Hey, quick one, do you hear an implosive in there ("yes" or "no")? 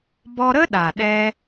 yes